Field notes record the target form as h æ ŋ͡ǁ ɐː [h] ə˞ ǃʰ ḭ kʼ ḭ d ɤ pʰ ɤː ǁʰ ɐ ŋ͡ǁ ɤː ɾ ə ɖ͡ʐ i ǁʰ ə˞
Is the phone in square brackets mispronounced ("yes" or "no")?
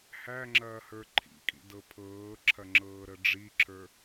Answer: no